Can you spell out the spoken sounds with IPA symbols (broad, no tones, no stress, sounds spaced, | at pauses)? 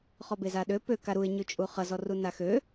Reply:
χ ɔ b e z a ɗ ø p ø k a ɾ u ɪ̯ ɲ ʉ t͡ʃʼ u χ ʌ z ɔ r u n a x ø